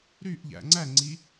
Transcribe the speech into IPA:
ɾyʔʎæ̰ ŋ͡ǀæŋ͡ǀi

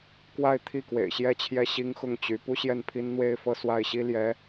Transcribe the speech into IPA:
kwa˥˧ɪ̯t̪ʰi˥˩ kwḛ˨˩ɪ̯ɕjɛ˥˧t͡ɕʰjɛ˥˩ ɕi˥ŋxʊ˥˩ŋt͡ɕy˧˥ pu˥ɕjɛ˥˩npʰi˥nn̪we˥ɪ̯ fɤ˥˧swa˥˩ɪ̯ɕi˥ ljɛ˧˥

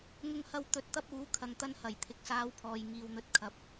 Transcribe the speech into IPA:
ŋʊ˧ŋhɐ˧w t̪ɵ˨˥t̚t̪ɐ˥p̚uː˨˥ kʰɐ˧ŋt̪ɐ˥n hɐ˨˩jt̪ʰɪ˨k̚saː˨˧w pʰɔː˨j ŋiː˨wn̪ɵ˨˥t̚kʰɐ˨p̚

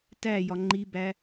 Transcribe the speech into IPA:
tæjɒ ŋ͡ǃibæ

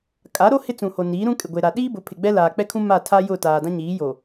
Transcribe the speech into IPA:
kʼa˨˦ɾo˦ hɪ˦t͡sũ˨ho˨ niː˨˦ɾũ˦ kʼɪ˨ɡʷe˨ɾa˨ ɗiː˦bʊ˨˦pʰɪ˨ ɡ͡bɛ˦laː˨k͡pɛ˦kʰũ˦ ma˦˨tʰa˦jʊ˦˨ taː˨dã˦ɲiː˨˦jo˨

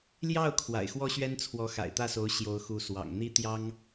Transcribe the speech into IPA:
ljɑ˥˩ʊ̯ kʰwa̰˨˩ɪ̯xwɔ˥ɕɥɛ˥n t͡sʰwɔ˧˥xa̰˨˩ɪ̯t̪ä˥˩so˧˥ʊ̯ ɕjo˧˥ʊ̯xu˧˥swɑ̰˨˩ŋ n̪i˥t̪jɑ˥ŋ

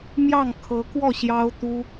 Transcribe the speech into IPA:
mjɑ˥˩ŋkʰɤ˧˥kwɔ˥˩ ɕjɑ˥ʊ̯t̪u˥

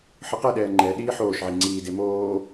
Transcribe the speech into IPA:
ħɯqɛɗɛː ŋ͡ǃɛ ɗiːħoːʃʕi ŋ͡ǀiːde moː

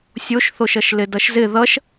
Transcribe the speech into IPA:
sʲoʃθoʃʌʃ lɪdʌʃzɪ ðʌʃ

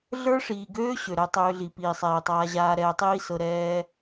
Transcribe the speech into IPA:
ɮə˞˦ʂiː˨ɡøː˦ ɕø˨ɾɛ˧tˤøː˧ɮi˨ piː˨sˤɛː˨tˤaː˧ʑaː˧ ɾɛː˧tˤiː˦sɤ˧ ɾɛː˦

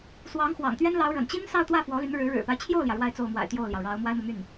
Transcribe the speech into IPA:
swɑ˧˥ŋxwɑ̰˨˩ŋt̪ɥɛ˥nlɑ˧˥ʊ̯ ɻə̰˨˩nt͡ɕi˥n sɑ˥˧ʊ̯t̪wä˥˩ fwɔ˧˥ly˧˥nɻɻ̩˧˥ ɻɻ̩˨˩pa˦ɪ̯t͡ɕʰjo˥˩ʊ̯ljä˩ ɻwa˥˧ɪ̯t͡so˥˩ʊ̯mwa̰˨˩ɪ̯ t̪jo˥˩ʊ̯ljɑ˩ʊ̯ ɻɑ˧˥ʊ̯ mwa˥ɪ̯mɤ˨my˥˩n

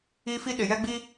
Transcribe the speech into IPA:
i˦ fi˦ɗɪ˨jɛ˦ ɡ͡bi˦

